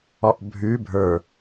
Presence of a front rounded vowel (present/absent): absent